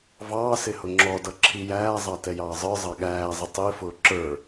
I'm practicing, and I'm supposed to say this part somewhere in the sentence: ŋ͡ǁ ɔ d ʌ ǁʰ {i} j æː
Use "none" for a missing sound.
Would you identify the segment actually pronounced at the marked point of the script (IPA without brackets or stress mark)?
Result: i